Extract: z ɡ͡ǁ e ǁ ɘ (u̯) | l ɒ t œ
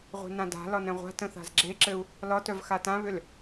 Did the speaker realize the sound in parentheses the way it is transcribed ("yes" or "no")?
yes